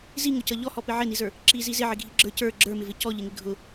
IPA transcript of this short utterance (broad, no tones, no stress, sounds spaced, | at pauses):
z i ŋ ʊ c ʌ ʎ ɔ h ɔ p ɪ ʕ ɪ n i z ə˞ | ǁ i z i z ɪ ʕ ɪ ɡʱ i ɡ͡ǁ ə˞ c ə˞ ɡ͡ǁ ə˞ m ɪ v ɪ c ɔ ʎ ɪ ŋ ɪ ɡʱ ʊ